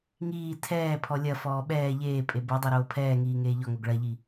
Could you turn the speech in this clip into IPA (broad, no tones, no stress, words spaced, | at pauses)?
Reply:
ŋiː tʰɛːpʰɔ lʲɐfɔː ɓɛː ʎeː pʼebodˤe ɾoːpʰɛːŋiː ŋeːʎɔŋoɡ ɭɐʎi